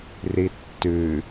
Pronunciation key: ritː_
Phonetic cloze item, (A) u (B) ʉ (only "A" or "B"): B